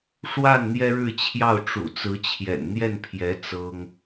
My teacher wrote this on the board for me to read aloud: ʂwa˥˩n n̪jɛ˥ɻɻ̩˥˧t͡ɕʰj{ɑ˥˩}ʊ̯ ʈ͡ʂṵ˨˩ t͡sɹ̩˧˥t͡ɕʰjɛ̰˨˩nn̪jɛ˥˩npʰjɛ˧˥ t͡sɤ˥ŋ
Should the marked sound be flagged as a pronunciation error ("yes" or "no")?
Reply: no